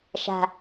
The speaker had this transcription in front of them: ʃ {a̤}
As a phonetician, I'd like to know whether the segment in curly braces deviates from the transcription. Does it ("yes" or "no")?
no